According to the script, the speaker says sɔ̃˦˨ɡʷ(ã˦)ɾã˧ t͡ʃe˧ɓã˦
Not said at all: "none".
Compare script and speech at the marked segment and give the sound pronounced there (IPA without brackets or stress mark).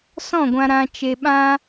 ã˧